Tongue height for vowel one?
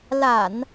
low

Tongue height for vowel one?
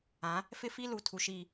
low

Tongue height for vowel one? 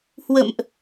mid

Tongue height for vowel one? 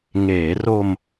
mid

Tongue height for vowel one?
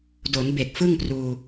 mid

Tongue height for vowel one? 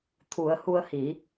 high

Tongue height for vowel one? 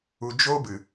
high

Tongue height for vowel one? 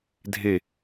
mid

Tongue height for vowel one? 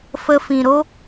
mid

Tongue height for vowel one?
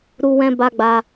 high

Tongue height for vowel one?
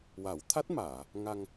low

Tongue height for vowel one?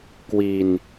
high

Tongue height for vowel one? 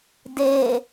mid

